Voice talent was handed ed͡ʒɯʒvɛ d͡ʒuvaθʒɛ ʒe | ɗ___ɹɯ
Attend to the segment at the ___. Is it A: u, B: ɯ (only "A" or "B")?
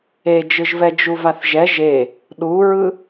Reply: A